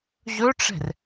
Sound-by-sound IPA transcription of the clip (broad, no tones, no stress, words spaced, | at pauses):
ʑɵʈ͡ʂɛ̤r